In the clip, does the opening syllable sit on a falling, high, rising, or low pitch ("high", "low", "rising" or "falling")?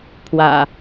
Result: low